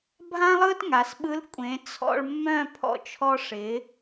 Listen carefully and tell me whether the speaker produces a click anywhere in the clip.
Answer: no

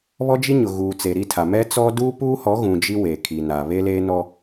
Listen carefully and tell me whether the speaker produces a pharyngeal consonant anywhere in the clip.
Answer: no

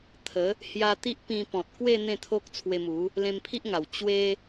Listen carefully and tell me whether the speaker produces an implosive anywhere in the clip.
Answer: no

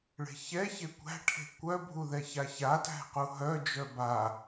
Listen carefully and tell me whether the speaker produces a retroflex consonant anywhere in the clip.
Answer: yes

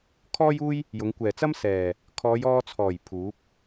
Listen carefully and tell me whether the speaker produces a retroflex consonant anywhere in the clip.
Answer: no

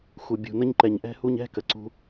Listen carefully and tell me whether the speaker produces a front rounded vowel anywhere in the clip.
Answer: no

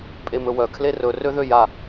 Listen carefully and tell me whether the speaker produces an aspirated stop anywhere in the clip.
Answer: yes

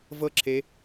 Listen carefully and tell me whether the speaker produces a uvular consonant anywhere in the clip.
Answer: no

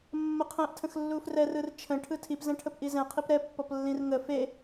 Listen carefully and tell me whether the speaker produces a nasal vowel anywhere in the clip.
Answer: yes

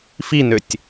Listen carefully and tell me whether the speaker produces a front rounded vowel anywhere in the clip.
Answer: yes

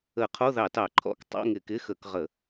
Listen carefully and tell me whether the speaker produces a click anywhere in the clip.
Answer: yes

